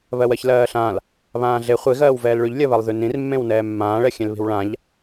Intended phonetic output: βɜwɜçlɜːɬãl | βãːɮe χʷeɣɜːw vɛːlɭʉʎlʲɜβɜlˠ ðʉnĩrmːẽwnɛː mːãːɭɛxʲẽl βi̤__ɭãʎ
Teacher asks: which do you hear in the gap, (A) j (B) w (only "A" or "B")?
B